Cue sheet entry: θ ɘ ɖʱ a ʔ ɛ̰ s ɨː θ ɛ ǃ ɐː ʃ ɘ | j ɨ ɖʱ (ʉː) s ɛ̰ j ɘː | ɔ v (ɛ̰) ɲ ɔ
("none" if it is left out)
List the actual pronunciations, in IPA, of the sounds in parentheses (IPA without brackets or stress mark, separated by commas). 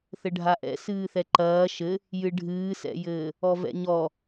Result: ɨː, ɛ̰